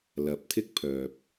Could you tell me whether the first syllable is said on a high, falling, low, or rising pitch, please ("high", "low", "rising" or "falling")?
rising